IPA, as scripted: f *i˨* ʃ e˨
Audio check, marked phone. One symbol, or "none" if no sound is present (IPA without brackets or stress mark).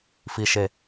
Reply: i˨